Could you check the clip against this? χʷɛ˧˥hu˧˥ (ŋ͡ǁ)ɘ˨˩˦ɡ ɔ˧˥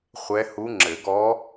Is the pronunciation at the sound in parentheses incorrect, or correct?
correct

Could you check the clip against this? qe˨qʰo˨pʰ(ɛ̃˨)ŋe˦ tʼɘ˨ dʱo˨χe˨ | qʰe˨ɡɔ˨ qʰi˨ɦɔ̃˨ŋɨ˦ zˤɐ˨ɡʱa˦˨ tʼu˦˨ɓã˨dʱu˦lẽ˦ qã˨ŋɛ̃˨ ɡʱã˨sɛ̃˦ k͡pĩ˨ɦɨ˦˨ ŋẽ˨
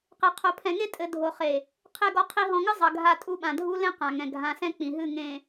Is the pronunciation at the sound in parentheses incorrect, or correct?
correct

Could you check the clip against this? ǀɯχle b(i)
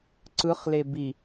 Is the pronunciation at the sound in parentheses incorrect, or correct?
correct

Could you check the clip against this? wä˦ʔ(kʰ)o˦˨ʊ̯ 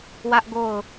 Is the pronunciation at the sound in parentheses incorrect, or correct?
incorrect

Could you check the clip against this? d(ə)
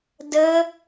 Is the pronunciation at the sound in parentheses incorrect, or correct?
correct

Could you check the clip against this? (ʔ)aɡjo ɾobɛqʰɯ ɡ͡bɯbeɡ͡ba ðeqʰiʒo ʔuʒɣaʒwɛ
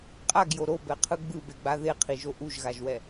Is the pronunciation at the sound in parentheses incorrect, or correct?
incorrect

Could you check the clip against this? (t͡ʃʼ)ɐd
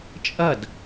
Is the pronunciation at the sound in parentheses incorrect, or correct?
correct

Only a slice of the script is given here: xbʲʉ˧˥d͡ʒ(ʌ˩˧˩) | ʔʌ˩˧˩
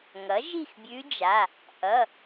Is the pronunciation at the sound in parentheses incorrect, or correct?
incorrect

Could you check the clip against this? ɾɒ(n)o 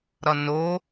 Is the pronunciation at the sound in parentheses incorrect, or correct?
correct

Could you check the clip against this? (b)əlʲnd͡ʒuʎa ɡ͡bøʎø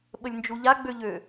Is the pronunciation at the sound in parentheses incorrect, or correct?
incorrect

